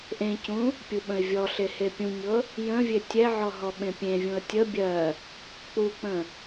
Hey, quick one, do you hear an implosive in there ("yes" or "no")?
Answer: yes